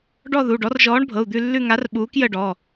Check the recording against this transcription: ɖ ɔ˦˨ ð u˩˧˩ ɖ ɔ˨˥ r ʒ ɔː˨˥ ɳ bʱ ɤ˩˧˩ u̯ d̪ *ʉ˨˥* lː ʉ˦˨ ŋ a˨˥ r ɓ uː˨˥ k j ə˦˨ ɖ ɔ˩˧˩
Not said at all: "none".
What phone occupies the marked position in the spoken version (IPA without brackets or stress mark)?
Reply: ʉ˦˨